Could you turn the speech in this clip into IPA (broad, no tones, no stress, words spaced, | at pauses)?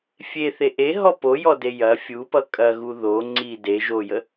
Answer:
fʲeθe ʔeɦɔ pojɔde jɐ fʲupʌ kʼɐɣu ðo ŋ͡ǀi de ʒojə